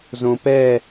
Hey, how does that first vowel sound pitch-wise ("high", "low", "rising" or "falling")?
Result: low